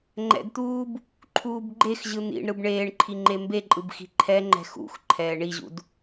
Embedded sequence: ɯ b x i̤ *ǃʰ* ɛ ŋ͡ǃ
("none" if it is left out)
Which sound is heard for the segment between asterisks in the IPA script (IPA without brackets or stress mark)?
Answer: ǃʰ